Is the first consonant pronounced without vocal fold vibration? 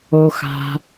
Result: yes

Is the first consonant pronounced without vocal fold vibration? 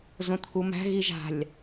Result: no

